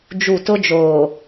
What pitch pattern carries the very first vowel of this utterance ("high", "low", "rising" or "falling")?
falling